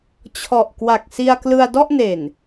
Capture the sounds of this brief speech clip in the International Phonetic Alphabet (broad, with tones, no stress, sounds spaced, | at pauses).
t͡ɕʰ ɔ˨˩ ʔ k w a˨˩ k̚ s i˧ a̯ k l ɯ˧ a̯ d ɔ˥˩ ʔ n e˨˩ n